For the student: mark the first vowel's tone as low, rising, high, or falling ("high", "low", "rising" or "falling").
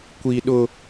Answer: high